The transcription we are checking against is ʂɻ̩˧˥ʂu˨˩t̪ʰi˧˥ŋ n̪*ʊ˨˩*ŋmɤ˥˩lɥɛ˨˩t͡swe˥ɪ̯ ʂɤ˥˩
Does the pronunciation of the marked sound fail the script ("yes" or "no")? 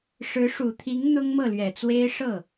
yes